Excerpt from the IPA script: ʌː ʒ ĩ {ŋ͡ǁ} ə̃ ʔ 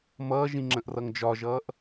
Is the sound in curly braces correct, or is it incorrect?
correct